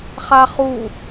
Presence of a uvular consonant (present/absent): present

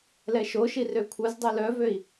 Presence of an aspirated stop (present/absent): present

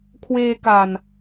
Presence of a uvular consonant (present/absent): absent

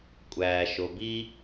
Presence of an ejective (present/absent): present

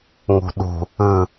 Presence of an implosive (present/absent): present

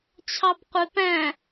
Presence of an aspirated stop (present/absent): present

